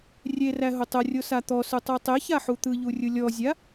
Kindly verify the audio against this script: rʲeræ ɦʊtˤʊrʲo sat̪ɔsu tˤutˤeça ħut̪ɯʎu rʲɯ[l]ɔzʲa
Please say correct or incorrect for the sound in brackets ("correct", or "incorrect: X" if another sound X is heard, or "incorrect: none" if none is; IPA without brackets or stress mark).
incorrect: lʲ